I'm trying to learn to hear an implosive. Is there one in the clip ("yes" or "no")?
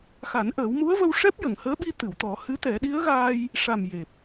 yes